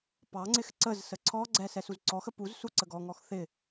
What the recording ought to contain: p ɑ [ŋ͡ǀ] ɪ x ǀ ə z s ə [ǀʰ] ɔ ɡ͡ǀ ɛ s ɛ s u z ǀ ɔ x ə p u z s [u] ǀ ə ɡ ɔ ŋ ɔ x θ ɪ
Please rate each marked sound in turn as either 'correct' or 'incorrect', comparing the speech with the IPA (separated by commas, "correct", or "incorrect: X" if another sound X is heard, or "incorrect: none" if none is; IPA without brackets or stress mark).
correct, correct, correct